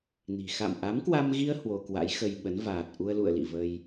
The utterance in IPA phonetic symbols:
n i̤˨˩ x a̰˧˨ m ʔ a˨˦ m k w a˧ m ɣ i˧ ə̯ h w o˧ k w a̰˧˥ j x ə˧ j ɓ ə˨˦ n v aː˨˩ t̚ ʔ u˧ ə̯ l ṵ˧˨ ə̯ l ḭ˧˨ v ə˧ j

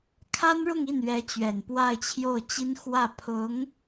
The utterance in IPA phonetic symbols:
kʰ a˥ n ɻ ʊ˥˧ ŋ i˥˩ n ɥ ɛ˧˥ t͡ɕ ɥ ɛ˨˩ n p w a˥˧ ɪ̯ t͡ɕʰ j o˥˩ ʊ̯ t͡ɕ i˥ n x w ä˥˩ pʰ ʊ˧˥ ŋ

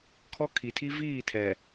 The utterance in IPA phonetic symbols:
kʰ ɔ˦ kʰ i˨ tʰ i˦ v iː˦˨ tʰ ɛ˨

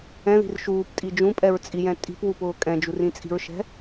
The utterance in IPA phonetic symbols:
ɛ̃ ð i̤ r ʃ uː p tʼ i d͡ʒ ũ pʼ ɛ ɹ t͡sʼ i j ɛ̃ tʼ i̤ p w u p ʊː kʼ ɛ̃ d͡ʒ u r ĩ t͡sʼ i̤ ɹ ʃ ɛ̤

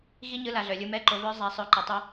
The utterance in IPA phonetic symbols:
ɣ i˥ ɲ ɯ˧˥ l a˩˧ ɮ œ˩ lʲ ɯ˧ m ɛ˧˥ ǃ o˩˧ β œ˧˥ zˤ a˩˧ sˤ œ˩˧ ǃ ɘ˩ tˤ o˧

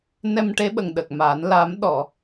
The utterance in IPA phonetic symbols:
n ɛ˧ m ʈ e˧˥ ɓ ə˨˩ ŋ ɗ ə˨˩ k̚ m a˨˩˦ n l a˨˩˦ m ɗ ɔ˨˩˨

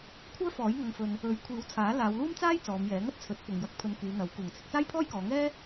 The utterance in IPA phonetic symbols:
kʷʰ œː˥ f ɔː˨˥ j ŋ ɐ˧ ŋ f ɵ˧ n | ɵ˨˥ ɥ kʷʰ iː˨˥ w t͡sʰ aː˨˥ l aː˨˧ w l uː˥ m t͡s aː˥ j t͡s ɔː˨˧ m j ɛː˨˥ ŋ ɐ˥ t̚ t͡sʰ ɵ˨˥ t̚ p ʊ˨ ŋ j ɐ˧ k̚ pʰ ɵ˧ n k yː˨˧ n̪ ɐ˨˥ w k uː˨˩ ŋ t͡sʰ ɪ˧ k̚ t͡s aː˥ j pʰ ɔː˥ j k ɔː˨˧ ŋ ɛː˥

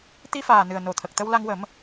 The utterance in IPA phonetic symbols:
t̪ i˧ f aː˨˩ n ɨ˨˩ ə̯ n o˨˩ t̪ʰ ə˨˩ k̚ t̪ ə˧ w l a˧ ŋ w ə˨˩˦ m

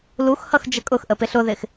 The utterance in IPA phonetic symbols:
l u x h ʌ x d͡ʒ ə kʼ ʊ x ʔ ə p ɪ ɬ ʊ ð ɪ x

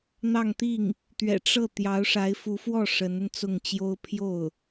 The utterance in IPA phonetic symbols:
n̪ ɑ˥˧ ŋ t̪ i˥˩ ŋ | t̪ ɥ ɛ̰˨˩ ʈ͡ʂ ɤ˥˩ t̪ j ɑ˧˥ ʊ̯ ʂ a˧˥ ɪ̯ f u˧˥ f w ɔ˥˩ ʂ ə˧˥ n ə˧ n t͡s ʊ˥˩ ŋ t͡ɕ j o˥ ʊ̯ pʰ j o˥˩ ʊ̯

